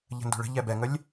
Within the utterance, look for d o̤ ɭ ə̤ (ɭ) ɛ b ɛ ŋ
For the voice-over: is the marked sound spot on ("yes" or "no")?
no